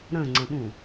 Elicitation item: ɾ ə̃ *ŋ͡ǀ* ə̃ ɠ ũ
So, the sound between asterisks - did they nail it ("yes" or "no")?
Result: yes